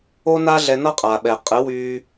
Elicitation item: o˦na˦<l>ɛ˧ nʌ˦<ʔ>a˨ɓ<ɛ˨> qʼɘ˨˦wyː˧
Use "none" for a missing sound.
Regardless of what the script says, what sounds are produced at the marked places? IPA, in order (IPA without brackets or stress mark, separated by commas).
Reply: ɮ, qʼ, ɛ˨